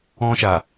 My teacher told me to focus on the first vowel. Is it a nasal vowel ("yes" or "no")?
yes